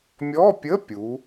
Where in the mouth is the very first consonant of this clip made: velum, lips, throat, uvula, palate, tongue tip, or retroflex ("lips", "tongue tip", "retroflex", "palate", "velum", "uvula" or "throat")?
lips